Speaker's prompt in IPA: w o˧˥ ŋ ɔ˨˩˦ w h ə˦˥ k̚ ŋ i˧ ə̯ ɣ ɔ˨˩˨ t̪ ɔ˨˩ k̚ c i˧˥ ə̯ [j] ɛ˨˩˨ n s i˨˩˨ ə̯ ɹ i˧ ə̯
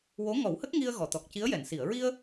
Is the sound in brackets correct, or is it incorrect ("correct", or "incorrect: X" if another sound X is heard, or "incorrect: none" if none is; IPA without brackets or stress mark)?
correct